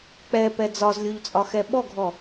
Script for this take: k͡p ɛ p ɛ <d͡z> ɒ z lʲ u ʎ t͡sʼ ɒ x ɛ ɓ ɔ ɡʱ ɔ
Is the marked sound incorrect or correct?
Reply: correct